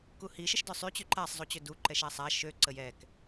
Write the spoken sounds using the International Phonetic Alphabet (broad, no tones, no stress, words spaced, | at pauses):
kuhiʃəʃ dœsˤy t͡ɕyǃasˤzˤut͡ɕø du ǃɛʃasˤa ʃø ǀəjɛk